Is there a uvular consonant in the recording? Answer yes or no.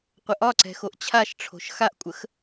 yes